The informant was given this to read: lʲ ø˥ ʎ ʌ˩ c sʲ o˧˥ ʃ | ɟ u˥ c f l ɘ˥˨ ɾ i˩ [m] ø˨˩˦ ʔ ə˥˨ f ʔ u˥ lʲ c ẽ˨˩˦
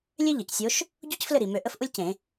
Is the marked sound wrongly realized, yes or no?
no